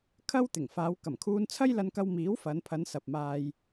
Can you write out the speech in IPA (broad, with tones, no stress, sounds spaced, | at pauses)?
kʰ ɐ˥ w t̪ ɪ˨˩ ŋ f aː˨˧ w k ɐ˨˩ m kʰ uː˧ n t͡sʰ ɐ˥ j l ɐ˧ n k ɐ˧ w m iː˨˥ w f ɐ˨˧ n pʰ ɐ˨˧ n s ɐ˨ p̚ m aː˧ j